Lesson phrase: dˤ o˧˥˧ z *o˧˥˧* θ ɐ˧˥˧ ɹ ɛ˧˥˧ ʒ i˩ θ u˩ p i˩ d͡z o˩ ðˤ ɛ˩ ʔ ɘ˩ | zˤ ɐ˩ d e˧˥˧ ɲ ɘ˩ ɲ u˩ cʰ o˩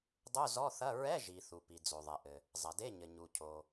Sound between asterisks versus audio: incorrect: ɔ˧˥˧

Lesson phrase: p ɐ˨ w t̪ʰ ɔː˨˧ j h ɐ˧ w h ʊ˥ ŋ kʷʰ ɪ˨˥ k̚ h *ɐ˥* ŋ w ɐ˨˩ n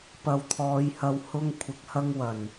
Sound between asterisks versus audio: correct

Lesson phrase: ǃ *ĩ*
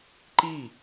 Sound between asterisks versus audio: incorrect: i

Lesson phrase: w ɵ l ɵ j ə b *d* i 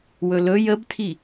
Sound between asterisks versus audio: incorrect: tʰ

